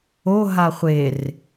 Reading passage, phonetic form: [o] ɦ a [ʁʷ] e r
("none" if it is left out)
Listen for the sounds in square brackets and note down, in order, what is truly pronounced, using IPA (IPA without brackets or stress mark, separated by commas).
o, χʷ